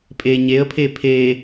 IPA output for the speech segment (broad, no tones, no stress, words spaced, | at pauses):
pʼe ɲeə̯pʰe pʰe